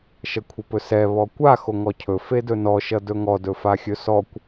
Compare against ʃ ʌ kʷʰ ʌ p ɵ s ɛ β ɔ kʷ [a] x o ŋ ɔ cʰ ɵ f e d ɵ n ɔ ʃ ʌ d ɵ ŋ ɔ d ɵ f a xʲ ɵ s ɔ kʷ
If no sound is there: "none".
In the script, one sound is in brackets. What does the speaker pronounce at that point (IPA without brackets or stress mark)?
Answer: a